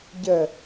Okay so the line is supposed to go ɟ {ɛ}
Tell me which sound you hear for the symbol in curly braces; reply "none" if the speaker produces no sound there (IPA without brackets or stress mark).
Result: ə